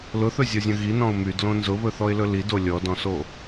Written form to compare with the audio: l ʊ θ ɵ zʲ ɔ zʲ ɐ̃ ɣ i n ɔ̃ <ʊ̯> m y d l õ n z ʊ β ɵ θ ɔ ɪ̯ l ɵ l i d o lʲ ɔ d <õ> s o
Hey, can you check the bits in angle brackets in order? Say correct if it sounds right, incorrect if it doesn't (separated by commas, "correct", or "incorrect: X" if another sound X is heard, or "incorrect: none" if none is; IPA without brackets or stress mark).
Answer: correct, incorrect: ɔ̃